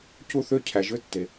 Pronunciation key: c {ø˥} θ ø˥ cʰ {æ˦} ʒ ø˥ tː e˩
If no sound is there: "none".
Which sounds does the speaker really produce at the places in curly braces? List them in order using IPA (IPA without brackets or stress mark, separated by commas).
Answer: u˥, æ˨